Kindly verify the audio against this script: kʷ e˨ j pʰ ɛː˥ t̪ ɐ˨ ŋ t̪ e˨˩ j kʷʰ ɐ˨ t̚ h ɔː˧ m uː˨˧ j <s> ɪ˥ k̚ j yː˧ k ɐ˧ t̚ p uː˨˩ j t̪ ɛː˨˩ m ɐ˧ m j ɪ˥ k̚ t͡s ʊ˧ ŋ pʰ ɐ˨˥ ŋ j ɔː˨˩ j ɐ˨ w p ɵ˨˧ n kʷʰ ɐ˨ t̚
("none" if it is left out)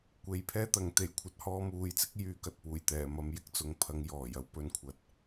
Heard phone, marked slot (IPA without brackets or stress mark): t͡s